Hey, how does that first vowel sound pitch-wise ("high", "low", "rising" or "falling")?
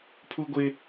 high